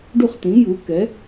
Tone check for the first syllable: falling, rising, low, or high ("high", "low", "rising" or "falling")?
falling